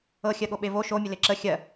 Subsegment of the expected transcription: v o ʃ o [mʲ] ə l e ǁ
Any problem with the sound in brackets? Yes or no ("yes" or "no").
no